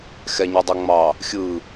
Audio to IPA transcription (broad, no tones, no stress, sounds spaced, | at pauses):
x ɛ ɲ y dˤ o ŋ͡m ɑ | xʲ ɯ